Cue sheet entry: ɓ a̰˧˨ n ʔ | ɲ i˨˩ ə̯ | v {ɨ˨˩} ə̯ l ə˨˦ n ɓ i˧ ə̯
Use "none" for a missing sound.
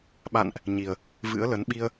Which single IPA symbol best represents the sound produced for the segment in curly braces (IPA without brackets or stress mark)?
ɨ̰˧˥